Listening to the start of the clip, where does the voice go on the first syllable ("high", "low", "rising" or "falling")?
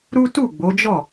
high